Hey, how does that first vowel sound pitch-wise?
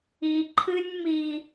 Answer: low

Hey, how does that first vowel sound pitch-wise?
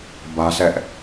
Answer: high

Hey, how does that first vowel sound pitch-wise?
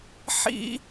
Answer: high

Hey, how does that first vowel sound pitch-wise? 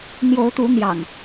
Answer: rising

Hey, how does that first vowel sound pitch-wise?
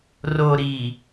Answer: low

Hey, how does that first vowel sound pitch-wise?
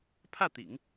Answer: falling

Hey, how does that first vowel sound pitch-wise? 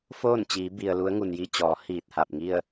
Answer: falling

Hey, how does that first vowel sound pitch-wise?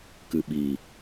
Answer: low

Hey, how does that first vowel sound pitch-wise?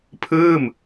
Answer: falling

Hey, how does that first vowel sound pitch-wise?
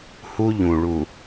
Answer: high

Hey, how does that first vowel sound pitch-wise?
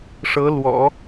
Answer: rising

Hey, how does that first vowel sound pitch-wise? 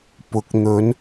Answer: rising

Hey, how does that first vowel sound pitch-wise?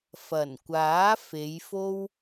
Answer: low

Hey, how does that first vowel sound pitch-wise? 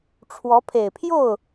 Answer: rising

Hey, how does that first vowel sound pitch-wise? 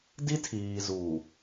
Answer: high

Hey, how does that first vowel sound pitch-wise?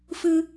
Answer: high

